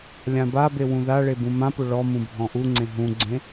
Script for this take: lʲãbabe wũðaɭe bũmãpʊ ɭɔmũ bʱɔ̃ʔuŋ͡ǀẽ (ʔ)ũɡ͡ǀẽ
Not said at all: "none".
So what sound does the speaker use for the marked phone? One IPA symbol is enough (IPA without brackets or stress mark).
ɦ